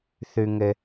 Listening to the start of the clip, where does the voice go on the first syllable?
high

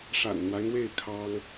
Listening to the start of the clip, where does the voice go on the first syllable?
low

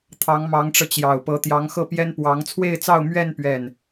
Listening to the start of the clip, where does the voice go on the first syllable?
rising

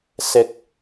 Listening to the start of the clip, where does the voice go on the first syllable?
low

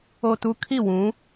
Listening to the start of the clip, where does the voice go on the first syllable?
low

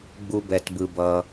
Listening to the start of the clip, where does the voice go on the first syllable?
high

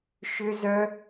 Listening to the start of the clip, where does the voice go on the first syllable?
high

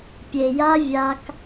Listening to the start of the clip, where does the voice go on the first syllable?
low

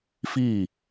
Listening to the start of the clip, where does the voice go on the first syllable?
falling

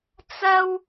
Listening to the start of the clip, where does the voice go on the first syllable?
high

